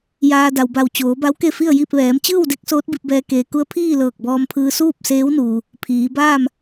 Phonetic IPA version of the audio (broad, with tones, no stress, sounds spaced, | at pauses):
j aː˧ d a˩ w b a˧˩ w t͡ɕ oː˩˧ b a˧˥ w k e˥˨ f i˥˨ ə̯ j i˥˨ p̚ ʋ ɛː˩˧ m t͡ɕ ɯː˥˨ w d e˧˥ k̚ s oː˧˥ t̚ b i˧ p̚ b ɛː˧ k eː˩ k u˧˥ ə̯ pʰ iː˥˨ l ɤː˧˩ k̚ b ɔː˧ m pʰ ɯː˧ s uː˥˨ p̚ s eː˧˥ w n uː˩ | pʰ iː˩˧ b aː˥˨ m